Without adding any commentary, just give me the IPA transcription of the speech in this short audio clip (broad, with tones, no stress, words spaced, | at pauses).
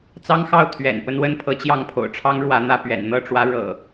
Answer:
t͡sɑ˦ŋxɑ˥˨ʊ̯ t̪ʰɥɛ̰˨˩n pə˦nwə˦n pʰɤ˨˦t͡ɕjɑ˥˨ŋ pʰo̰˨˩ʊ̯ʈ͡ʂʰɑ˦ŋ ɻwä˨˦n̪ä˥˨ pɥɛ̰˨˩nn̪ɤ˥˨ʈ͡ʂwä˨˦ ɻɤ̰˨˩